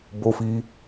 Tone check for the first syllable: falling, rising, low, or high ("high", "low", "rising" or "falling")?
high